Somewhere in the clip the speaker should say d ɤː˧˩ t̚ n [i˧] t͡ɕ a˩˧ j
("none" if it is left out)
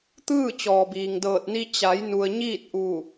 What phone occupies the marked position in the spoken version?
i˧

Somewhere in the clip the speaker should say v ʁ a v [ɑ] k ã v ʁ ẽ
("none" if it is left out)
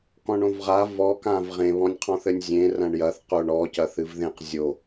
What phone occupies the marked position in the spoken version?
ɔ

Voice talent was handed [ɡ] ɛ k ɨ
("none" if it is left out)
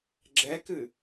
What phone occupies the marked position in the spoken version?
ɡ͡ǁ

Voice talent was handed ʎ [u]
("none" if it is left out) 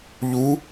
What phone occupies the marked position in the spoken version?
u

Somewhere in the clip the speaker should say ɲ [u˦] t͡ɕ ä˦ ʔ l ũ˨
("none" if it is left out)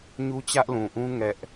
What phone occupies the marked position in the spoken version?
u˦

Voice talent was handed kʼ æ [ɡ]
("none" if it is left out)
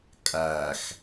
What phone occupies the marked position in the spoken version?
x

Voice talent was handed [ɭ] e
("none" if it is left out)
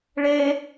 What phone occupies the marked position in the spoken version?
ɭ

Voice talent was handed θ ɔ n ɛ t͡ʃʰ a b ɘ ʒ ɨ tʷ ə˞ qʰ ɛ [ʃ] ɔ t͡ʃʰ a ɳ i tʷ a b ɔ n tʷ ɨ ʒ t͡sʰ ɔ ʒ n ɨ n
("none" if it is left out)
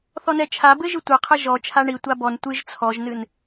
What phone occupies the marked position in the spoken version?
ʒ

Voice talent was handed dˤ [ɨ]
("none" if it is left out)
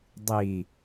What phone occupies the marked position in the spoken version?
i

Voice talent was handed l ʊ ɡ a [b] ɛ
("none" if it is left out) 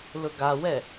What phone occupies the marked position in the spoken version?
w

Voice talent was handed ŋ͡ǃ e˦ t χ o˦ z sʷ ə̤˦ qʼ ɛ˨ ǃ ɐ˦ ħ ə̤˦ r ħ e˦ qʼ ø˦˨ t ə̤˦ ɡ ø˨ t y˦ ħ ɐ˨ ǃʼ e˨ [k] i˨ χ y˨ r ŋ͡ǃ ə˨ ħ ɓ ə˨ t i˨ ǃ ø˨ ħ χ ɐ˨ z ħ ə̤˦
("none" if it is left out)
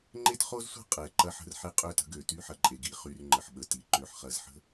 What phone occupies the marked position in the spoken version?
ɡ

